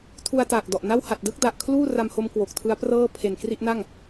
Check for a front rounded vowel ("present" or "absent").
absent